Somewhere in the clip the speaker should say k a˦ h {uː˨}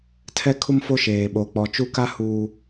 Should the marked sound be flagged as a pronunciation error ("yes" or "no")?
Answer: no